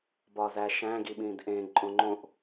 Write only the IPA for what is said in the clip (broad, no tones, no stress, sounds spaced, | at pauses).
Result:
b ɒ z æ ʃ æ̃ ɡ i ɓ ĩ d ʔ ẽ ǃʼ õ ŋ͡ǃ õ ʔ